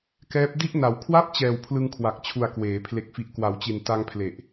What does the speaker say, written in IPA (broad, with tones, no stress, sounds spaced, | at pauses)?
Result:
k ɛː˦˥ p̚ d i˦˥ ʔ n a˩˦ w kʰ w a˥˩ p̚ t͡ɕ ɛː˨˩ w pʰ l ɯ˧ ŋ kʰ w a˨˩ k̚ t͡ɕʰ u˨˩ a̯ k w eː˩˦ pʰ l e˨˩ k̚ f i˨˩ ʔ k w a˩˦ w t͡ɕ i˨˩ n t a˧ ŋ pʰ l e˨˩ ʔ